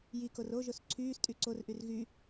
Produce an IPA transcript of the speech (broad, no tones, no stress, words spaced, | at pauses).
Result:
jikor oʒos ǀʰyːstʼy ǀorʔyr ɣy